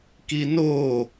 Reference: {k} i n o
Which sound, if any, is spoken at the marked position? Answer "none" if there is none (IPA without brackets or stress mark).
k